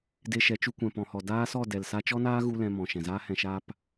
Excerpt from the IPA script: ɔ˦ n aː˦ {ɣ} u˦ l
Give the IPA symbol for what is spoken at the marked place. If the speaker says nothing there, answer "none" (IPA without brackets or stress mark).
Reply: ɣ